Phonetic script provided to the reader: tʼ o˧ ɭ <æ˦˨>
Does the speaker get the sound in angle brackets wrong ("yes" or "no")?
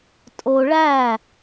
no